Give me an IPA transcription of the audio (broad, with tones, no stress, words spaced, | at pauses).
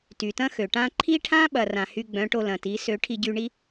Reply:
ty˨tɐ̃˦xø˨ʈã˦ ǃʰi˦ʈʰã˦ɓɐ˨ rã˨hy˧ɡ͡bœ̃˨˦ ʈo˧lɐ̃˨ti˨˦ sø˨˦ʈʰi˧ɟy˧ ɳi˦